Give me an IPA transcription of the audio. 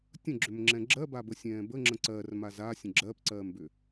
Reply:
tʲə̃ɡ͡ǁʏmŋ͡ǁɛ̃ ɡ͡ǁɜbabəsʲɛ̃ː bəŋ͡ǁə̃ ǀɜrmaz asʲə̃ ɡ͡ǁɜpǀɜːmbʏ

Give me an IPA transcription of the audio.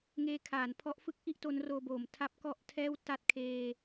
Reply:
ŋeː˧kʰaː˩˦n pʰɔ˦˥ʔ fɯ˦˥k̚ ʔi˥˩ʔ to˦˥nroː˧boː˩˦m tʰa˦˥p̚ kɔ˥˩ʔtʰɛː˥˩w ta˥˩t̚kʰeː˧

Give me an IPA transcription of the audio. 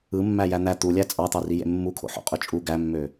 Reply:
ɯmːæ jæn̪æ t̪ulʲæ t͡sʼɑt̪ɑri jḛmːukʰo̰ ħo̰qʼøt͡ʃʼu ɡæmːø

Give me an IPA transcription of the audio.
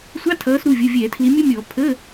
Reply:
sʷɑ˧˥˧tʰʌː˨˦sɾu˩˧˩vʲʊ˩˧˩ vʲɛː˧˩˧tʰli˨˦ mʲʊ˦˥mʲɔ˧˩˧ pʰəː˧˥˧

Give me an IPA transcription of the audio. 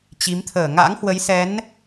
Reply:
t͡ɕi˨˦mt̪ʰəː˧˩ ŋa̰˧˥ŋhwə˨˦jsɛ˨˦n

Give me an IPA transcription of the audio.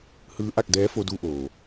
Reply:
hɯː˧˥ʔa˧k̚dɛː˧˥fo˧ du˧ʔoː˩

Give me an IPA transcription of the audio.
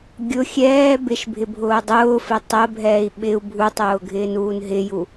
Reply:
ɡʲʊ xʲɛː bɪʃbʱɪ bʱʊːdˤʊːfɪ tˤəbʱɛːi̯ ɓɪu̯ bʱutˤʊː ɡʱɪːnuːnɦɪju

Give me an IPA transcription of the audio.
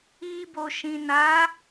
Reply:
i˧ bo˨ʃĩ˨na˨˦

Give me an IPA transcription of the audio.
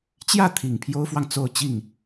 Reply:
t͡ɕjä˥˩t̪ʰi˨˩ŋ pʰjo˥ʊ̯fwɑ˨ŋ t͡so˥˧ʊ̯t͡ɕi˥˩ŋ

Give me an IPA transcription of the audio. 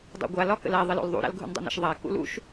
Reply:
dˤo̰ɡʷa lɒkə̰la ðˤɘlo̰lðˤṵ ɾa̰lɡʱṵndˤo̰nə̰ʃ ðˤa kṵlṵʃ

